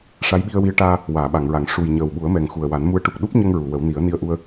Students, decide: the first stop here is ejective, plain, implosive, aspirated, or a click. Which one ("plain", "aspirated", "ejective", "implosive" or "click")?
implosive